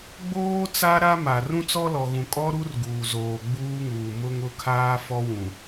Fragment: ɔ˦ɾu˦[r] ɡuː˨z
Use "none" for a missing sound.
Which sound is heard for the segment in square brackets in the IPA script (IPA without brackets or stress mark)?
r